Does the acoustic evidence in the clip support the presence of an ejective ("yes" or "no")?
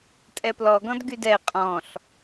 yes